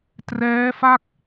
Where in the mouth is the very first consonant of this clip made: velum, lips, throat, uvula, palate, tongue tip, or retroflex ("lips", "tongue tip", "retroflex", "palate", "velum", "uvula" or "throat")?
tongue tip